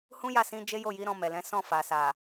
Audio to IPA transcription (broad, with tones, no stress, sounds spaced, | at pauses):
h ũ˦ j a˦˨ s ĩ˧ d͡ʒ e˦ j o˦˨ j i˨˦ ɾ ɔ̃˧ m ɛ˨ l ɛ̃˨˦ s ɔ̃˦˨ f a˨ s a˨